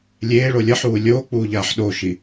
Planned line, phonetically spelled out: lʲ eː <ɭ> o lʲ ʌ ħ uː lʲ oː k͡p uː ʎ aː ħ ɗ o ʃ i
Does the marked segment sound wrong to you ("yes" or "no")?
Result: no